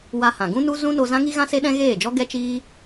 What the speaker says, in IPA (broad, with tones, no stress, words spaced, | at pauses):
wa˧hã˨ ɡũ˦nu˦ zũ˦no˧ zã˦ŋi˦ ɣã˦se˦ɗɛ̃˦ ɣeː˦˨d͡ʒɔ˦ ɡɛ˦t͡ʃiː˦